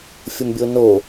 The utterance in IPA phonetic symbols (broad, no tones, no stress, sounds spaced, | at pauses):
fʲ ʊ m bʲ o n o